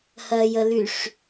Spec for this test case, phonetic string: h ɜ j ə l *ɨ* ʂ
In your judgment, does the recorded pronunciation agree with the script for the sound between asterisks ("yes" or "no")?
no